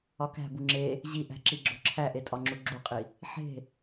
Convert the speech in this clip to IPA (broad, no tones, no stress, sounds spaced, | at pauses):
ɒ k æ̤ b u ŋ͡ǁ e | ʑ i ʔ æ̤ ǁ i ɡ͡ǁ o̤ ǁʰ æ ʔ e tʼ ɒ ŋ͡ǁ u ɡ͡ǁ u qʼ i | ħ e̤